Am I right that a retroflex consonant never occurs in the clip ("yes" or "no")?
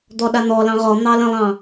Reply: yes